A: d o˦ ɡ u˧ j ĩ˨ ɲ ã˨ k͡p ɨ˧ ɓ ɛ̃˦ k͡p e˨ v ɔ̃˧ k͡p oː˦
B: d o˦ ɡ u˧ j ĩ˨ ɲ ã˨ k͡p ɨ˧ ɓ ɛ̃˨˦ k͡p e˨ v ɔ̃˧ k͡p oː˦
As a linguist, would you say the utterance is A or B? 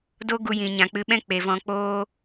A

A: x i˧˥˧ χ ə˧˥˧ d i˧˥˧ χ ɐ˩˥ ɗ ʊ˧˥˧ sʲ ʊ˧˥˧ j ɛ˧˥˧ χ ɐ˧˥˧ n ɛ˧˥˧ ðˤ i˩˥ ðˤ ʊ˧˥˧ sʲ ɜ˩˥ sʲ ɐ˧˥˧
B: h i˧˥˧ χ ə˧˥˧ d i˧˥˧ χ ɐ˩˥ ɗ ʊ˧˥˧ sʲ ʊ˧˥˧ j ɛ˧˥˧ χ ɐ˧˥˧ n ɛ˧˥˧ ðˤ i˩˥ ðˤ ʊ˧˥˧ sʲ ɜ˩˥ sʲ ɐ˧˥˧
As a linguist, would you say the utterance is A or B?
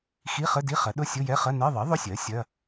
A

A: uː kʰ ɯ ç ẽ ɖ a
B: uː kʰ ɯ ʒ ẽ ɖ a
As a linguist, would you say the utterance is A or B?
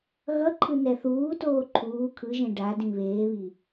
B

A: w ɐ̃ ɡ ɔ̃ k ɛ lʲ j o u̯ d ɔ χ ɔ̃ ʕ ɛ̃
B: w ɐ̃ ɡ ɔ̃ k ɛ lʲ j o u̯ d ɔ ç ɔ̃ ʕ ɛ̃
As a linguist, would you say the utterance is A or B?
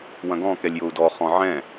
A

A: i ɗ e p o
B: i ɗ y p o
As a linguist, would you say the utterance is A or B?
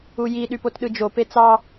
B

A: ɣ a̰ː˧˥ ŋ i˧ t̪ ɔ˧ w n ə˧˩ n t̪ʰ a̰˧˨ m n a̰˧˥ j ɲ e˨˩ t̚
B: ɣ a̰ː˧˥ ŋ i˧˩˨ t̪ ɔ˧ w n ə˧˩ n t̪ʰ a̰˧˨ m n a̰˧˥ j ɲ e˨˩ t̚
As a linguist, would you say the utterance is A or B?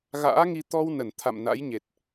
A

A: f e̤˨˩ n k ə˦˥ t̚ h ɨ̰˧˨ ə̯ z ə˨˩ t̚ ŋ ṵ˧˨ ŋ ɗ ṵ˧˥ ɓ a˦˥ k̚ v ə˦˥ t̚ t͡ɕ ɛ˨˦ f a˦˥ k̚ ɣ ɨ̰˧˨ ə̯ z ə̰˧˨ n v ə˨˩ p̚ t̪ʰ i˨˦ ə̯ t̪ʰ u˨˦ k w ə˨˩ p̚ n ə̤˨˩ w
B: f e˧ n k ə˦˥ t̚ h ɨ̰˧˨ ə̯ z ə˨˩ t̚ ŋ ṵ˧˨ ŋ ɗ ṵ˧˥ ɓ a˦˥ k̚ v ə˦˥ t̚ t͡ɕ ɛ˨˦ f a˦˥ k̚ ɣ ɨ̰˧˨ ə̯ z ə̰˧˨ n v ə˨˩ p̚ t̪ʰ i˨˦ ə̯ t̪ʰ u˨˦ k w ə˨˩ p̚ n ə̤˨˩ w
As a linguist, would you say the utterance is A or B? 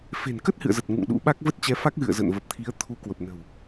A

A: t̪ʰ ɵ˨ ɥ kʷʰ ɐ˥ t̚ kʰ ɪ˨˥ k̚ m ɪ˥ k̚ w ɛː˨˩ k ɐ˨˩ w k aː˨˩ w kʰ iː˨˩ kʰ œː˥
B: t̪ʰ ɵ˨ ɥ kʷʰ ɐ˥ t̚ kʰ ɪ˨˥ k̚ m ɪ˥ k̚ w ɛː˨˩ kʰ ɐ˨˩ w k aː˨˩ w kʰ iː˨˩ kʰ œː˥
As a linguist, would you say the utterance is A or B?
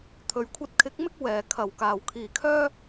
B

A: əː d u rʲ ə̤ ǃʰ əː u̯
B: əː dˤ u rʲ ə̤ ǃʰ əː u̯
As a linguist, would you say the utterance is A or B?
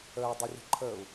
B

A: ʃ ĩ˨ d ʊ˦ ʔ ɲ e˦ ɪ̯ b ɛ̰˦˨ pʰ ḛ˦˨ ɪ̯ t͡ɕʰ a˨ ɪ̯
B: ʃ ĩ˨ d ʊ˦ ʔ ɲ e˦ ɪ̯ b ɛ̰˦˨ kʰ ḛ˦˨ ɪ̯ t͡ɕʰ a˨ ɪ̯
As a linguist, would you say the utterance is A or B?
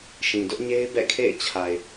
B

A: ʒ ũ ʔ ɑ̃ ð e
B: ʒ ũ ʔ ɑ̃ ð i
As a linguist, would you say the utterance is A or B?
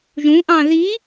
B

